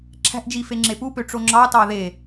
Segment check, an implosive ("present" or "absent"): absent